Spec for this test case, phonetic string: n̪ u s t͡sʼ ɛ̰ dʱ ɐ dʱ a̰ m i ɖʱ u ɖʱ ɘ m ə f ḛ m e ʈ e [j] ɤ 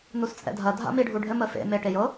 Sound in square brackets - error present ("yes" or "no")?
no